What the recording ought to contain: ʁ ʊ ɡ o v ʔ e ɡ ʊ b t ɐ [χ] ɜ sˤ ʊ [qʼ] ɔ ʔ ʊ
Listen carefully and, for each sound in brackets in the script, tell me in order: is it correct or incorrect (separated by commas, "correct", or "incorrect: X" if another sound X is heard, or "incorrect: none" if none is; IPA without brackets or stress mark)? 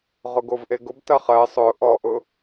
correct, incorrect: ʔ